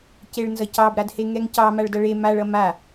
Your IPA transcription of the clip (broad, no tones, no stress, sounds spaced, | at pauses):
c e ɭ n z ʌ c ɑ b ɾ a d h e ŋ ɛ ŋ c ɑ m a ɭ d ʌ ɭ e m a ɭ ʌ m a